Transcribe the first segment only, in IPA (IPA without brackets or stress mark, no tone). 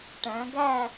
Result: ʈ